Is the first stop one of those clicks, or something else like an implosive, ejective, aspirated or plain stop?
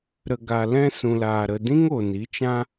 plain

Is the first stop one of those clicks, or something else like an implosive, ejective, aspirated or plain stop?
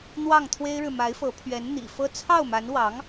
aspirated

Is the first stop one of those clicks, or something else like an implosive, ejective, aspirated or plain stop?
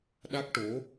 implosive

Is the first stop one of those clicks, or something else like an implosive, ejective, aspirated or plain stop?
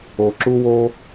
click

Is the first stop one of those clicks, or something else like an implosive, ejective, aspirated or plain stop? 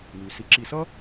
click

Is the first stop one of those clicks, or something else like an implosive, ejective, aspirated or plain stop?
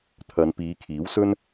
aspirated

